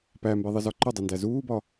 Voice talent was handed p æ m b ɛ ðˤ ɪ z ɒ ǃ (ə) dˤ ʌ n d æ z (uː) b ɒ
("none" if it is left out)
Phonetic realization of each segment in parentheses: ʊ, uː

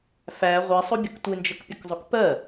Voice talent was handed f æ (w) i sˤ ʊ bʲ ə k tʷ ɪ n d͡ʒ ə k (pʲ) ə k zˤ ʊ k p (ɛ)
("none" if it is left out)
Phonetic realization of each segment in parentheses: ʁʷ, pʲ, ɜ

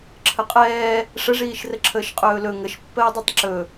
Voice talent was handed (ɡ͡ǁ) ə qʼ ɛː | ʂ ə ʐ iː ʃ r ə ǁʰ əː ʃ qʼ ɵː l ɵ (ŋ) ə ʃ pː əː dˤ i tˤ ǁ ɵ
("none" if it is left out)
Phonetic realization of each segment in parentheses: ǁʰ, ŋ

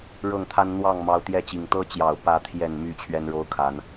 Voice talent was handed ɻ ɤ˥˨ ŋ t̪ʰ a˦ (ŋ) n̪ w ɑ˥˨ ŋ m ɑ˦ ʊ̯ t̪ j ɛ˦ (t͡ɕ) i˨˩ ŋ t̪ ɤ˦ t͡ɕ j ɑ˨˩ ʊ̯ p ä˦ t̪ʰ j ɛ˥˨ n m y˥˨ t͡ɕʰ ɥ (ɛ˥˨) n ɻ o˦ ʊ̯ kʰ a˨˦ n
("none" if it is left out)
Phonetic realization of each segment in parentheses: n, t͡ɕ, ɛ˦

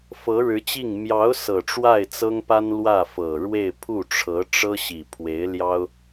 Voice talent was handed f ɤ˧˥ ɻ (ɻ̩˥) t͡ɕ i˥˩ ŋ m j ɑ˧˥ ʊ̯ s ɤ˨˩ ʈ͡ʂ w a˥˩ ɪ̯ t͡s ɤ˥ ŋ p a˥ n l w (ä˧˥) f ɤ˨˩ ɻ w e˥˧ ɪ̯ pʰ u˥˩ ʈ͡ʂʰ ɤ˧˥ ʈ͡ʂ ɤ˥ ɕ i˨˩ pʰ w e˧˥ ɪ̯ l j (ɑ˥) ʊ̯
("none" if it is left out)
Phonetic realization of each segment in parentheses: ɻ̩˧˥, ä˥˩, ɑ˥

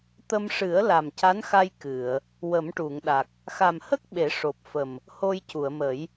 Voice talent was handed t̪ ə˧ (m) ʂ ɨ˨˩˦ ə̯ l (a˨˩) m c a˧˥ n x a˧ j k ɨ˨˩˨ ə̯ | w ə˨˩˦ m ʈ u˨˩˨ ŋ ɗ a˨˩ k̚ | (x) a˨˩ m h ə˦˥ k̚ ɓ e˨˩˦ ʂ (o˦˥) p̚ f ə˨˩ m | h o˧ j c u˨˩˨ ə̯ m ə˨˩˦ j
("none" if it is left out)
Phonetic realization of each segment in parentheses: m, a˨˩, x, o˨˩

